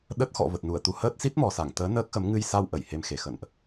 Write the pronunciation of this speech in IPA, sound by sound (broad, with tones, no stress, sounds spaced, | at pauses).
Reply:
ɗ ə˦˥ t̚ x ɔ̰˧˨ v ə˨˩ t̚ n u˧˩ ə̯ t̪ u˨˦ h əː˦˥ t̚ s i˦˥ t̚ m ɔ˨˩ s a˧˩ ŋ t̪ əː˨˦ n əː˦˥ k̚ x ə˨˦ m ŋ ɨ˧ j s a˧ w ʔ ə˧˩ j h e˧ m x e˨˩ x ə̰˧˨ n ʔ